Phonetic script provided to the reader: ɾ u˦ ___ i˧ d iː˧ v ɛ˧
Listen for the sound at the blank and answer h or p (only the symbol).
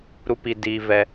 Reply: p